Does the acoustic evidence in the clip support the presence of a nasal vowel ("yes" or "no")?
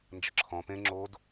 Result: yes